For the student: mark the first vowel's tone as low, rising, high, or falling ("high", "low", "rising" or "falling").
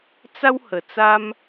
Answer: high